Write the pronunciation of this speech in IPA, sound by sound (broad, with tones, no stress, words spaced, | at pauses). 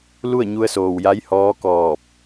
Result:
lu˥˨ə̯ɲu˧ə̯soː˩wja˧˥j hɔː˧˥ kɔː˧˩p̚